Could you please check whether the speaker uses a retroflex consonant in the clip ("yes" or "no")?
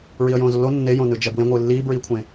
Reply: no